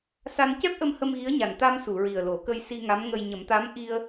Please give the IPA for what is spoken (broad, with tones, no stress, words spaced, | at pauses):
sa˧n cɛ˦˥p̚ʔə˧m hə˧mɣi˧˥ə̯ɲa˨˩n t̪a˧m su˨˩˨ɹi˨˩ə̯lo˨˩˦ kə˧jsi˧ ŋa˧˥m ŋə˧j ɲə˨˩˦mt̪a˧˥m ʔi˧ə̯